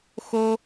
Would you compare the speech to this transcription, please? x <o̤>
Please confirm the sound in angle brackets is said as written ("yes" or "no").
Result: no